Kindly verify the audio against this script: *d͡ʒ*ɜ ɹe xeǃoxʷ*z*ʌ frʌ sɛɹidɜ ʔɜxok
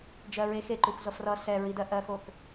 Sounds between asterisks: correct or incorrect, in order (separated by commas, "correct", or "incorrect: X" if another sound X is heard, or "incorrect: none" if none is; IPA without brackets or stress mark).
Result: correct, correct